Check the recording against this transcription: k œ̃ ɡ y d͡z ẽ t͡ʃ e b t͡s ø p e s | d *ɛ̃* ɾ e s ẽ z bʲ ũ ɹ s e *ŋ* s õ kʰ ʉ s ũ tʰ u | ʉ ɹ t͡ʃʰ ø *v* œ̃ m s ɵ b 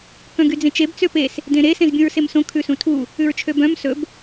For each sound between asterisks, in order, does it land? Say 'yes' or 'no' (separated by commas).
no, no, no